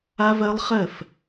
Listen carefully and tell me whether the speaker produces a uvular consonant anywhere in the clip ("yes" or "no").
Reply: yes